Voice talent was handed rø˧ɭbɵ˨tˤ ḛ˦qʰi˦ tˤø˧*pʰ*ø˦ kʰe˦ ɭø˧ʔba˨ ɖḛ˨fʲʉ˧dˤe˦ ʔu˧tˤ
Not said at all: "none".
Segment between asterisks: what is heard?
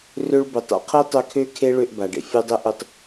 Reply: kʰ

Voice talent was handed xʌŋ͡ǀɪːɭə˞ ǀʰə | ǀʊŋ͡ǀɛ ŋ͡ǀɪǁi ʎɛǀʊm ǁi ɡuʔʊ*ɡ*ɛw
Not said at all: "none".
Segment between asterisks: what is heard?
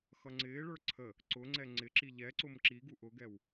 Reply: ɡ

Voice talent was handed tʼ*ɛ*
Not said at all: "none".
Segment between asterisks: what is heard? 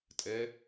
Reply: ɛ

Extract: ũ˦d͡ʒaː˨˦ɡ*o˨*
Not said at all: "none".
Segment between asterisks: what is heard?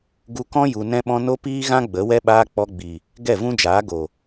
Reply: o˨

